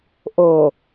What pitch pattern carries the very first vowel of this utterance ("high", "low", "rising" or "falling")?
low